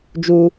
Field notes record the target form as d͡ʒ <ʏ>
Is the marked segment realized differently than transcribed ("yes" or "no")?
yes